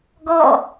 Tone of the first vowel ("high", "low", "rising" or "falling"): falling